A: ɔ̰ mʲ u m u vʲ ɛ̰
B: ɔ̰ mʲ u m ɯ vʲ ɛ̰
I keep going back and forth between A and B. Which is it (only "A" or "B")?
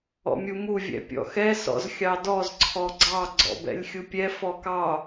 A